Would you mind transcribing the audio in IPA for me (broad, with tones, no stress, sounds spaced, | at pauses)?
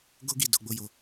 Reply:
ɡ o˦ ɡ i˦˨ d o˧ ɡ͡b o˧ j o˧